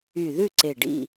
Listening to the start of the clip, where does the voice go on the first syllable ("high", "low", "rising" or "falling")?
low